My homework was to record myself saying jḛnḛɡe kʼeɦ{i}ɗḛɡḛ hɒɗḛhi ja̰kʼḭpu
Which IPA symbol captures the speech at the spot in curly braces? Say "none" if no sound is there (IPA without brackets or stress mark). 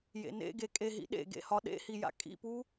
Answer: ḭ